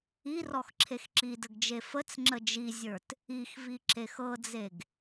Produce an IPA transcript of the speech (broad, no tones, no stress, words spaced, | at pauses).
irɔxǁʰex ǁidəɡd͡ʒe fət͡sŋ͡ǁə d͡ʒizʲə˞t | ixviǁex ɤd͡zeɡ